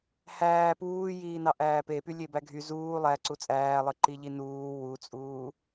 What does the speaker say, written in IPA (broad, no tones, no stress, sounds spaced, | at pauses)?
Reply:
h æː p uː j iː n ɑ ʔ æː p e p y lʲ e b æ ɡʱ y z uː lˠ æ ǀ u t͡sʼ æː lˠ ɯ ǃ i ʎ i n uː w u t͡sʼ uː